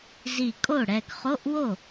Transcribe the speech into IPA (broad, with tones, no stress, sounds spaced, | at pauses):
z i˧˩ kʼ o˥˩ ɽ ɛ˧˩ ɡ χ o˧˥˧ ʔ w o˥˩